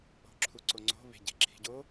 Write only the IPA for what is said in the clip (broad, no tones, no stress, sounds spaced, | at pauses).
o̤ ǁʰ u ǀ o ŋ͡ǀ o̤ β e̤ ɟ e̤ ǁʰ i̤ ɟ o